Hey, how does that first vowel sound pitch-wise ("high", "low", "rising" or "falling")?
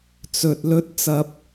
low